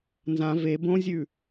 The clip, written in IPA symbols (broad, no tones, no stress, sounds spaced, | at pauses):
n z ã v e b õ zʲ ʉ